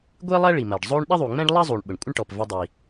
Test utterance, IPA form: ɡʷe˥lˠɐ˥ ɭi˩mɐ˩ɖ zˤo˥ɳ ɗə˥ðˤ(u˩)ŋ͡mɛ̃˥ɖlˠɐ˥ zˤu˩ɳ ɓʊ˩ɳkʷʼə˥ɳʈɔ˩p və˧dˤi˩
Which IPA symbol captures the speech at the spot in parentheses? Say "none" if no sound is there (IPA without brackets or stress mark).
u˩